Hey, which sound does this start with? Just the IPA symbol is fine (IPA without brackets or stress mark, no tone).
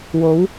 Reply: w